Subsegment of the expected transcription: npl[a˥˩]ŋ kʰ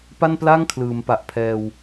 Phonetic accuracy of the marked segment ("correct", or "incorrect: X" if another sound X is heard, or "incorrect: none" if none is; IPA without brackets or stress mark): correct